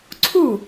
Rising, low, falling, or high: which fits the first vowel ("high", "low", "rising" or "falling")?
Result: falling